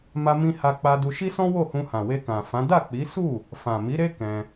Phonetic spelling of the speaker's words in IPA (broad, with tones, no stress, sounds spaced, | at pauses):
m a˧ m ĩ˧ h a˧ k͡p a˧ d u˧ ʃ i˦ s ɔ̃˦ w o˦˨ h ũ˧ h ã˨ w e˧ k ã˨ f ã˨˦ d a˦˨ k͡p i˨˦ s u˦˨ | f ã˨ m i˨˦ ɾ e˦ k ɛ̃˧